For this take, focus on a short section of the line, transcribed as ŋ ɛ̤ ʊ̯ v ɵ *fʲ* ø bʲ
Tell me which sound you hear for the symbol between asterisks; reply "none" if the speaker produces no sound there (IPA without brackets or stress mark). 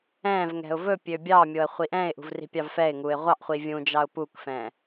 pʲ